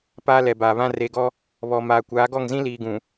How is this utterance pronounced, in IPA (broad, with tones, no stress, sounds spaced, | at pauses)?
p aː˦ l ɛ˨ b aː˨ β ã˦ r e˨ ɡ ɔ˦ | β ɔ˨ m aː˨ kʷ aː˨˦ ɡ ɔ˦˨ ŋ z ĩ˦ l iː˨ ɡ ũ˨